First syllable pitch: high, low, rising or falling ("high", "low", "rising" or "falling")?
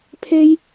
high